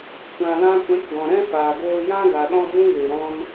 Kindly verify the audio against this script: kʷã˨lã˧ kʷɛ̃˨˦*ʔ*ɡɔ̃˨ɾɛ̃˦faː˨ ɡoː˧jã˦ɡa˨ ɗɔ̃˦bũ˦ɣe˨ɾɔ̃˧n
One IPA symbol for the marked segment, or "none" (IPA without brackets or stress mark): k